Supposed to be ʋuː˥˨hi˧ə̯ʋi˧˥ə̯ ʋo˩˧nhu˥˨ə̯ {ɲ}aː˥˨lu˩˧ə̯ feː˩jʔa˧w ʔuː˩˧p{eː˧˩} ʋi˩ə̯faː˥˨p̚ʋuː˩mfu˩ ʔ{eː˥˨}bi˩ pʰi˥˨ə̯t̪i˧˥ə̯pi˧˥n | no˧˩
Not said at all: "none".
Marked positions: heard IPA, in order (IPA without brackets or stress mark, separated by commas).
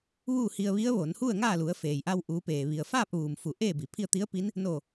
ŋ, eː˩, eː˥˨